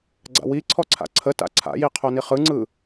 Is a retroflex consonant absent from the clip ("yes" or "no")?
yes